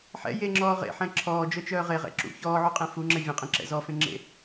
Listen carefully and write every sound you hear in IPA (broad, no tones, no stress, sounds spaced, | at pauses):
ħ ɛ̰ j e ŋ͡ǁ ɔː ʁ ḛ ħ ɛ̃ ǁʰ ɔː d͡ʒ œ t͡ʃ œː ʁ e ʁ ɛ̰ ǁ ṵ ç ɔː ʕ u qʼ ẽ f u ŋ͡ǁ ɛ vʲ ẽ qʼ ẽ ǁ ɛ̰ z ɔ f ẽ ŋ͡ǁ ḛ